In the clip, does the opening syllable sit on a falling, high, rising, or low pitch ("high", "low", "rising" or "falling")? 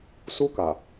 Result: high